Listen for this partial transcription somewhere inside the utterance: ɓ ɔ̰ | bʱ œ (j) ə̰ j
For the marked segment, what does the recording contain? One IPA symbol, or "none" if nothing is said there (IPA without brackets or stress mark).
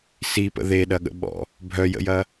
j